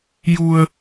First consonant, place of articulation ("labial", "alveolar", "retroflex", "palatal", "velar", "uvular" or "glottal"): palatal